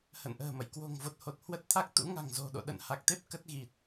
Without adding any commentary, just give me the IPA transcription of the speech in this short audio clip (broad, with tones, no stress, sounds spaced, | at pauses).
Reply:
h ə̰˧˨ n ʔ ə̤ː˨˩ m ə̰˧˨ j k w o̤˨˩ ŋ v o˨˩ t̚ h o˨˩ t̚ h w ə˦˥ t̚ t̪ʰ a˦˥ k̚ t̪ ṵ˧˥ ŋ a̤˨˩ ŋ z o̤˨˩ ɗ o̰˧˨ ɗ ə̰˧˨ n h a˨˩ k̚ t̪ e˦˥ p̚ k ə˦˥ t̚ ɣ i˨˩ t̚